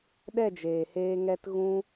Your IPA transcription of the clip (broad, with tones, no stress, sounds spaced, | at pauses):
ɗ ɛ˦˨ d͡ʒ eː˨ h eː˧ ŋ ɛ˧ t ɣ ũ˧